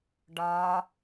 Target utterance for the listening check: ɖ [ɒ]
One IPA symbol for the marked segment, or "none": ɒ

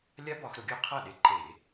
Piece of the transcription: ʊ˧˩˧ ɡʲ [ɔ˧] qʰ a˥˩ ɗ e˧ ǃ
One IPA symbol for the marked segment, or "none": ɔ˧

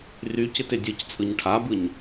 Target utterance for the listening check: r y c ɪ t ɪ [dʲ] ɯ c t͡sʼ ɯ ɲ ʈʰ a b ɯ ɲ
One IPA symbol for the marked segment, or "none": dʲ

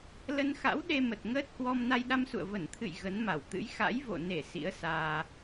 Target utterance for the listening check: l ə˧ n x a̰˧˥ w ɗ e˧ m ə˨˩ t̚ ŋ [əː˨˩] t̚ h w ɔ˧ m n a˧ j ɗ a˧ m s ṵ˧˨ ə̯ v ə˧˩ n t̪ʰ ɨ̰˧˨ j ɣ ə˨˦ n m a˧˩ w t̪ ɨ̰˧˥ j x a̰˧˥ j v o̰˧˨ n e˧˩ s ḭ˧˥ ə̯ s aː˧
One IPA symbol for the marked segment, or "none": əː˦˥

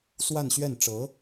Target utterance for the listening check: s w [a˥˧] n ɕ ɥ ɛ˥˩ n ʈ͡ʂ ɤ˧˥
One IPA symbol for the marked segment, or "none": a˥˧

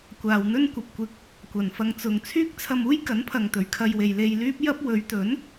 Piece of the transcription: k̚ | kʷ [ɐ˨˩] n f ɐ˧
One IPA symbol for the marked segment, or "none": ɐ˨˩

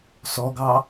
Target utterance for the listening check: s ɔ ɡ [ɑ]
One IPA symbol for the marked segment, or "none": ɑ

